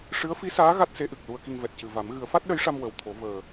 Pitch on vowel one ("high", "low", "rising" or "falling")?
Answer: rising